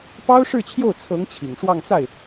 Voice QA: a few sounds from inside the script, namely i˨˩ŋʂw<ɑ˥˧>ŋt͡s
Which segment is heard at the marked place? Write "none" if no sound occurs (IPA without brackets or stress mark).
ɑ˥˧